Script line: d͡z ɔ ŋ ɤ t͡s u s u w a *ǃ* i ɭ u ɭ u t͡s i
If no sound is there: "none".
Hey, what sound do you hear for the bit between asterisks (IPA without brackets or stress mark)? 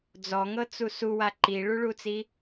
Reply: ǃ